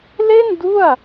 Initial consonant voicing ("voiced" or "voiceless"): voiced